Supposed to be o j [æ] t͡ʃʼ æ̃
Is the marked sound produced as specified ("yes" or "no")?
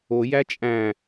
yes